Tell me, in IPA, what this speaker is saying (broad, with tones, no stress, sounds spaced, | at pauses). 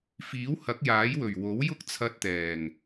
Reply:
f iː˨˥ w h ɐ˨˥ k̚ j aː˨˥ j w ɵ˨˩ ɥ w o˨˥ w j ʊ˥ k̚ t͡sʰ ɐ˧ t̚ t̪ ɛː˨˩ ŋ